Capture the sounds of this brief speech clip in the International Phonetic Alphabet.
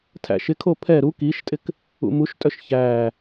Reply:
tʰ æ̰ ʃ ɪ kʰ o pʰ ɛ ɾ u k i ʃ tʼ ɪ k | ṵ m u ʃ tʼ œ ʃ ç æː

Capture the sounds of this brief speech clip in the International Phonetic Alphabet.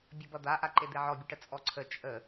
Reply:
bʲ ʌ b ʌ d̪ a ʔ a ǃ e d̪ e ʕ ɔ bʲ ə ʈ ə t͡sʼ ɔ ǀʰ ə t͡ʃʼ ə

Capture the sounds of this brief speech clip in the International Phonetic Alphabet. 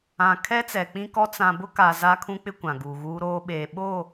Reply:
ã˨ kʰ ɛ˦ t͡s ɛ˨ k͡p ĩ˦ k ɔ˦ t͡s ã˨ b ʊ˦ k a˨ z a˦ kʰ ũ˦ k͡p ɪ˦ kʷ ã˨ ɡ uː˨ ɣ uː˦ ɾ oː˦ ɓ eː˨ ɓ oː˦˨

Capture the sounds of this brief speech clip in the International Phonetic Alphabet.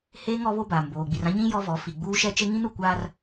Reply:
h eː˦ ŋ ɔ˨˦ β o˦ b aː˨ m b oː˨ ɡ͡b i˨ r ã˦ ɲ ĩ˦ j ɔ˦ v ɔ˨˦ f i˨ ɡ͡b uː˦ ʃ ɛ˦ t͡ʃ e˦ ŋ ĩ˦ n u˨ kʷ aː˦ r

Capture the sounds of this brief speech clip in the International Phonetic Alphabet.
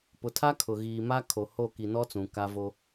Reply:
p ʊ˨ tʰ a˦ kʰ ʊ˨ ɣ iː˨ m a˦ kʰ o˨ h o˦˨ k i˨ n ɔ˦ t͡s ũ˨ k a˦ v o˦

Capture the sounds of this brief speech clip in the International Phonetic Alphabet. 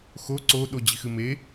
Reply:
x o ǀ o ɗ o d͡ʑ i x ɨ m e

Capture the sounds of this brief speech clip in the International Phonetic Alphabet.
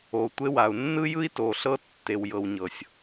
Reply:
o˨ tʷ e˦ w a˨ u̯ nː ɯ˦ j ɯ˦ i̯ t o˨ ɬ ɤ˦ tː e˨ w j ɤ˨ w ɲ ɤ˨ sʲ

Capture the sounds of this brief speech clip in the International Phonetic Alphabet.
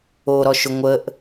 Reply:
o ɾ ɔ ʃ ʊ ŋʷ ə ʔ

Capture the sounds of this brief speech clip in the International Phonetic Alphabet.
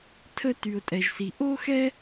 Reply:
tʰ ə˥ t y˩ ʊ̯ tʼ ɛ˩ ʒ s i˩ ʔ o˥ x ɛ˥

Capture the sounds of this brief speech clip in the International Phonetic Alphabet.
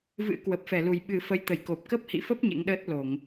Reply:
v ɨ̰˧˥ k w ə˨˩ p̚ f ɛ˧˩ l u˨˩ j ɓ ɨ˨˩ f ə˨˦ j t̪ ə˧˩ j k o˨˩ p̚ k ə˦˥ p̚ h ḭ˧˨ f ə˦˥ p̚ ɲ ḛ˧˥ ŋ ɗ əː˦˥ t̚ l o˧˩˨ ŋ

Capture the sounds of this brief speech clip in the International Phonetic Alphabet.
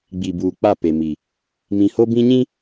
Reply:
ɡ͡b i˨ b uː˨ k͡p a˦˨ p e˨ m i˨ | m ĩ˨ h o˦ b ĩ˦ ɲ ĩ˦

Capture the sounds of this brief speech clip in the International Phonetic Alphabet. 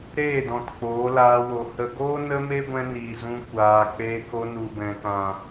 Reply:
ɾ eː˦˨ d ɔ̃˨ t k͡p oː˨˦ l aː˧ w o˨ h ə˨ ɡ oː˦ n ə˦ m e˦ ɡʷ ɛ̃˧ n iː˨ z ũ˧ kʷ aː˧ k͡p eː˧ k o˧ n u˨ b ɛ̃˨ k ã˨

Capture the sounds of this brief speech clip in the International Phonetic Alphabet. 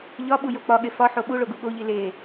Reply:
ʎ ɒ ɓ u j o k͡p ɒ ɠ e f ɒ ħ o ɓ u ɭ o ɡ u ɠ o ʎ i l e

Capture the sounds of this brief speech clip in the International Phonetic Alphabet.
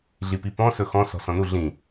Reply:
ɮ i p i p ɔ̃ s ɵ x ɔ̃ s ɔ̤ s ɔ̃ n u ɮ ĩ

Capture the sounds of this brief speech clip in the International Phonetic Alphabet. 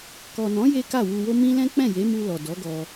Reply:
k ɔ˨ n ɔ̃˨˦ j e˦ k a˦˨ w u˧ w o˦ m ĩ˦ l ɛ̃˦ k͡p ɛ̃˦˨ j e˨˦ m u˧ l ɔ˨ d ɔ˨˦ ɡ ɔ˧

